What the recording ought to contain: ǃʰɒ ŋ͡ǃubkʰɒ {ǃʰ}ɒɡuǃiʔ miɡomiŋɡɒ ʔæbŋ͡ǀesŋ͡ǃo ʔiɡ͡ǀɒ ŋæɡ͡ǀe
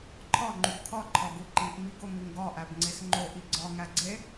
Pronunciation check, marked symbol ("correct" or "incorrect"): correct